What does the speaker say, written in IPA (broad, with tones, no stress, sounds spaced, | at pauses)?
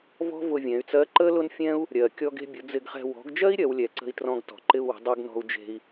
v ɔ̤˥ v ʊ˧ vʲ ɛ̃˩˧ y̯ t͡s ɜ˧˥ ǃ ə˥ l ʊ˥ n fʲ ɛ̃˥ u̯ | ɾʲ ɜ˩ kʲ ɔ˧ ɡ e̤˧ bʲ ʊ˩˧ d͡z ɪ˧ ɡ χ ɛ̤˧ w ɔ̤˩˧ ɡ d͡ʒ ɜ˥ i̯ ɾʲ ɜ˩˧ w lʲ ɛ˩ ǀ ə̤˧ i̯ t r ɔ̃˧ ɡ t ɔ̤˩ ǃ ɪ˧ u̯ w ə̤˩˧ dˤ u˧ ɡ n ɔ̤˧ u̯ d͡ʒ e̤˧ i̯